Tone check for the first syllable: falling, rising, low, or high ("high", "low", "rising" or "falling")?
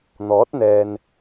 rising